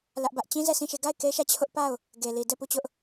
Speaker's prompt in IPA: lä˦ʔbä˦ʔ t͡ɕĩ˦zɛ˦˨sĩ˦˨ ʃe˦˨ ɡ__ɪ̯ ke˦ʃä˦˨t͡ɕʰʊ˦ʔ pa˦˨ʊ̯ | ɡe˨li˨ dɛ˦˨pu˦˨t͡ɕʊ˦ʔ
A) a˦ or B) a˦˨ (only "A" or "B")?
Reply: B